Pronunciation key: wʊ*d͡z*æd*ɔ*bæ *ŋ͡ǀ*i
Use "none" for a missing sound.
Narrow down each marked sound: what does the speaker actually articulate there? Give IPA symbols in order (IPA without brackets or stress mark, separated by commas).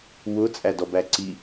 t͡sʼ, ɔ, ǀ